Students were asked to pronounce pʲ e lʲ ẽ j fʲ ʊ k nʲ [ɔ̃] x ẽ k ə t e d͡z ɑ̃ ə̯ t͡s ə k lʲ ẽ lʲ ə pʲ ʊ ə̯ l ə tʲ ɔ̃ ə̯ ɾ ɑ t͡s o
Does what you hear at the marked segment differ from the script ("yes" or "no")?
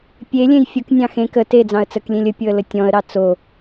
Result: yes